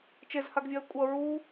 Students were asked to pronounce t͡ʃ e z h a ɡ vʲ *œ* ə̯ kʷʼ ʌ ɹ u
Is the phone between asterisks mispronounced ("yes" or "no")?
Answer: no